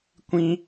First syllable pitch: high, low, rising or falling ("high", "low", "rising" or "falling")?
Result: high